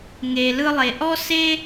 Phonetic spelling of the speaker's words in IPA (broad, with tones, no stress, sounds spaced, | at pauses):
ŋ e˩ l ɯ˧ lˠ e˩ ʔ ɔ˥ s e˥